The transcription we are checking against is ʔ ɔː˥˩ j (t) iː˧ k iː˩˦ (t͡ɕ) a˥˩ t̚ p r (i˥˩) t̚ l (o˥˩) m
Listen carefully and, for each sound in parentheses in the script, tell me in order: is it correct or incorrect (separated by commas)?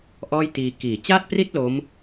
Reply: correct, correct, correct, incorrect